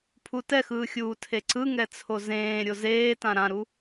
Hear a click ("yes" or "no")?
yes